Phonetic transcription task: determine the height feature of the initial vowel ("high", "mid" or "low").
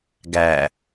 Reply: low